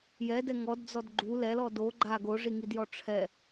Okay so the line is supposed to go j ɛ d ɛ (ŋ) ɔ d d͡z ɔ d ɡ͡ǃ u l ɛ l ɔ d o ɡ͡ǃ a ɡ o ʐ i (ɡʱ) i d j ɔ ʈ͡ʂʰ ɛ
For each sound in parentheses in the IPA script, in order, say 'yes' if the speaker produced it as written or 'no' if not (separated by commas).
yes, no